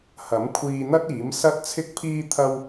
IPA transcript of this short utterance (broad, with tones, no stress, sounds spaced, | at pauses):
h ɐ˨˥ m kʷʰ iː˧ n̪ ɐ˥ t̚ iː˨˥ m s ɐ˥ t̚ t͡sʰ ɪ˥ k̚ pʰ iː˥ t̪ʰ ɐ˥ w